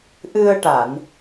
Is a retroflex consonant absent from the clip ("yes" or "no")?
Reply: no